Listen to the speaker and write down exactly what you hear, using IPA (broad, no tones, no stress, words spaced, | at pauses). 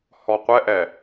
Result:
hɔqʷɛʔɛ